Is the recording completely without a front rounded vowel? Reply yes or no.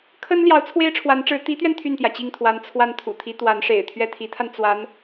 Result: no